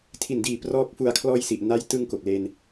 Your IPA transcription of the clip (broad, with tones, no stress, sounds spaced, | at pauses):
tʰ i˨˩ n d iː˨˩ p r ɔː˥˩ k̚ f u˨˩ a̯ kʰ l ɔː˧ j s i˨˩ ʔ n a˦˥ j t ɯ˧ ŋ k o˨˩ k̚ l e˧ n